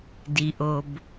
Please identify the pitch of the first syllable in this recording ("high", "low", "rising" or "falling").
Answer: low